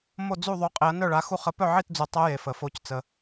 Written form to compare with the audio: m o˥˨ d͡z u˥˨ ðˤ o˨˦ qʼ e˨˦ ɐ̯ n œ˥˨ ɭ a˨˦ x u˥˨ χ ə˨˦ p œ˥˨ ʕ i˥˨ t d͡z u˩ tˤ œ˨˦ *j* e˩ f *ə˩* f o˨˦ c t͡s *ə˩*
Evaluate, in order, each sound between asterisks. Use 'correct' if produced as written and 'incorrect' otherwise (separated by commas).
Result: correct, correct, correct